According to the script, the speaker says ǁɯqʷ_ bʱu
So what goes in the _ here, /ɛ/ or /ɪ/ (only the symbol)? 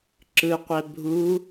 ɛ